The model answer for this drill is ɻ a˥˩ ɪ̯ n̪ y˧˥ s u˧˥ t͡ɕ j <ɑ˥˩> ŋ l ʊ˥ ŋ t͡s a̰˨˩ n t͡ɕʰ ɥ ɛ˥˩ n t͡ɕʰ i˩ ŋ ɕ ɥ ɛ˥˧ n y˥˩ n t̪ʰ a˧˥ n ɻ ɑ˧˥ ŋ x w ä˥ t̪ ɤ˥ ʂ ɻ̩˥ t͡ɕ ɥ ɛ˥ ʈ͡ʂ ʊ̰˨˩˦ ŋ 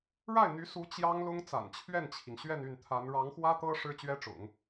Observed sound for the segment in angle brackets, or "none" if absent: ɑ˥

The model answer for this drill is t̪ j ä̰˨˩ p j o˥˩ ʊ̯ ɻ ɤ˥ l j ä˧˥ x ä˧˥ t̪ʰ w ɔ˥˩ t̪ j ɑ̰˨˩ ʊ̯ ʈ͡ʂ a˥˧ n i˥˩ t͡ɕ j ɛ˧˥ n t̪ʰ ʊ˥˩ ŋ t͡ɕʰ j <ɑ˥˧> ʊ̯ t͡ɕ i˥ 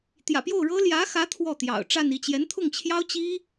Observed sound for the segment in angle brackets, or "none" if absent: ɑ˥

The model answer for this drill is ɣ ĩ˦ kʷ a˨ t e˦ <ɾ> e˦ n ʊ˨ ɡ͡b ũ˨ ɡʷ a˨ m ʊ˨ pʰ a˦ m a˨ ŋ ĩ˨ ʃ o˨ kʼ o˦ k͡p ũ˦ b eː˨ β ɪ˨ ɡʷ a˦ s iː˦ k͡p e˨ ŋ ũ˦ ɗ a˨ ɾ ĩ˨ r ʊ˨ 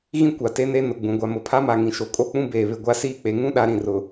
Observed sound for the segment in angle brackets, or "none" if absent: n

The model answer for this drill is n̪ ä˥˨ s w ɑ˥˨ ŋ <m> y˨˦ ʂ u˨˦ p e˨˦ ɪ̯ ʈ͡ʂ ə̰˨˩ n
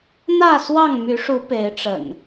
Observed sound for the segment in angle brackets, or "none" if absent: m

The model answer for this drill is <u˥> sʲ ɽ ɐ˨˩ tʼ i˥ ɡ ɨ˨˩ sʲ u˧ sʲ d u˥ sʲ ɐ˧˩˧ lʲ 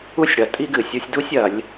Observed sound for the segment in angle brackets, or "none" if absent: u˥˧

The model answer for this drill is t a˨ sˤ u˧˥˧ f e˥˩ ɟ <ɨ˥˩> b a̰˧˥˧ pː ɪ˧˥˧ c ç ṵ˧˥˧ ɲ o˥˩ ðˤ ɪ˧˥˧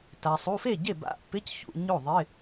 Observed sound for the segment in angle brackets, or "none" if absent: e˥˩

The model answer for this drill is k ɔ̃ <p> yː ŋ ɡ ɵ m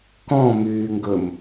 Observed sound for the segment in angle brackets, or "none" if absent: m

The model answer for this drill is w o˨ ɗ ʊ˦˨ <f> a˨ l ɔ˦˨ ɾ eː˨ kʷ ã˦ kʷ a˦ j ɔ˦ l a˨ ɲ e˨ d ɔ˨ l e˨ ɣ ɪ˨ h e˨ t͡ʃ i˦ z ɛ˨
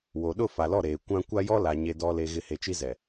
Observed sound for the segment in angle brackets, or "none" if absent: f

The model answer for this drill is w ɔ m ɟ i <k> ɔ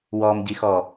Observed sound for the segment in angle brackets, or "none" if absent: x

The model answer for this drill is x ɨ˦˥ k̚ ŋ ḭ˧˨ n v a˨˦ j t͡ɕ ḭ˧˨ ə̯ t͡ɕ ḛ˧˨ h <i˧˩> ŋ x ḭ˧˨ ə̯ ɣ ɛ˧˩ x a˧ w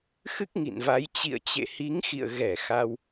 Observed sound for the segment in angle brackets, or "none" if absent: i˨˦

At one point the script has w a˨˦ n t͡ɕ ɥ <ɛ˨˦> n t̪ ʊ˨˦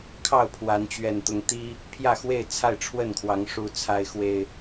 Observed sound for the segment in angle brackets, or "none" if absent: ɛ˨˩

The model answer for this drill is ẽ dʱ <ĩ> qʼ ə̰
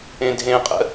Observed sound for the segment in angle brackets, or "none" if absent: ẽ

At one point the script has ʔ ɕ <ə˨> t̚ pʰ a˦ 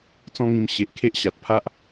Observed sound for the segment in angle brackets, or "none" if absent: a˨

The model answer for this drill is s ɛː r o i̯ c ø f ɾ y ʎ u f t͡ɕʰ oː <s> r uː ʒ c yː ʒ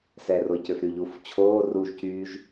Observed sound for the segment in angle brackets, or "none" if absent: none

